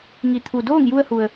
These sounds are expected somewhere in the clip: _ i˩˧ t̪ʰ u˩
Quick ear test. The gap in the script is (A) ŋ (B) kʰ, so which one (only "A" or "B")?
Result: A